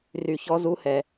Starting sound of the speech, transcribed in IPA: r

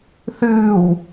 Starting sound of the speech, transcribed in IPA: θ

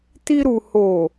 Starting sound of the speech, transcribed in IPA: t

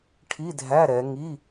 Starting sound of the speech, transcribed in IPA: ʈʰ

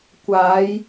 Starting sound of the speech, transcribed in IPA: kʷ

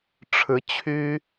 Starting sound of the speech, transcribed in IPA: ʈ͡ʂʰ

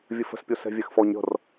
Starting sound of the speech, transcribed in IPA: vʲ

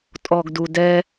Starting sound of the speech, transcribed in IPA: tʼ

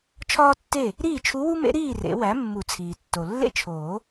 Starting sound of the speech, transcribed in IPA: t͡ʃʰ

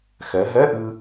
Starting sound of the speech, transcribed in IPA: x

